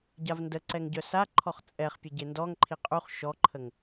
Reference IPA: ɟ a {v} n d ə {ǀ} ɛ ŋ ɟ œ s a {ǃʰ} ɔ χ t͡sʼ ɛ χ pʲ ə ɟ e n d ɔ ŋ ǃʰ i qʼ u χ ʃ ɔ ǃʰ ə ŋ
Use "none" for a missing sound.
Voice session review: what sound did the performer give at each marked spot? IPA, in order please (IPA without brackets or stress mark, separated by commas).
v, ǀ, ǃʰ